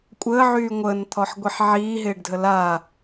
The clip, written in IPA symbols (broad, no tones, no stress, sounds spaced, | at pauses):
kʷʼ əː ʕ yː ŋʷ əː n t̪ʰ ɔ ħ ɡʷ i ħ ʕ iː ɦ ɪː ɖ dʱ ə l a